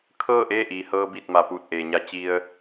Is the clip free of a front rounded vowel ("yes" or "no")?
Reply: yes